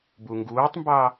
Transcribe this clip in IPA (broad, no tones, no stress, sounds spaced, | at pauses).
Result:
b u ŋ ɡ uː tˤ m b ɑ